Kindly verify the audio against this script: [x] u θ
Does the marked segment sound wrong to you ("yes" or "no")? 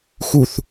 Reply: no